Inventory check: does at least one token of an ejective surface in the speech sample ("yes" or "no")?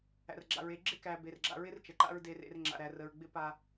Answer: no